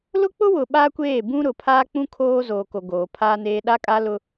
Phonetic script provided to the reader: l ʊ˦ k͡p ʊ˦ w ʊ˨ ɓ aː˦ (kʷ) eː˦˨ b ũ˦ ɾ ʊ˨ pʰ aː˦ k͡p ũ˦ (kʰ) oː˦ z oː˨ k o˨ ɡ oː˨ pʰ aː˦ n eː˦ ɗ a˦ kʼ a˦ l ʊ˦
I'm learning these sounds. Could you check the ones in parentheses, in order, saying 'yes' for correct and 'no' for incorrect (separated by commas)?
yes, yes